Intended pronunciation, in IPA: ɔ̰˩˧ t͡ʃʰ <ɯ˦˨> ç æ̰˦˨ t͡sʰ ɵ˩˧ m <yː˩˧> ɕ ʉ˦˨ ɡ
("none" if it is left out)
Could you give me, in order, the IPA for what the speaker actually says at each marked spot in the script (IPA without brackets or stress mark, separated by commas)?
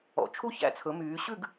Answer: u˦˨, yː˩˧